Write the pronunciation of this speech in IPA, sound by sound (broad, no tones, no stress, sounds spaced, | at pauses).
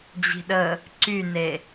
d͡ʑ i̤ ɗ ə | ǀ y n e